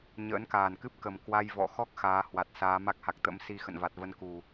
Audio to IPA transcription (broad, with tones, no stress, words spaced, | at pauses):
ɲə̰ː˧˥nkaː˨˩nkɨ˦˥p̚kə˨˩m kwa˧j vɔ̰˧˨xɔ˦˥k̚ xaː˨˦hwa˨˩t̚ saː˨˦ma˦˥k̚ha˨˩k̚ t̪ə̰˧˥msi˧xə̰˧˨n va˨˩t̚və˧n ku˨˩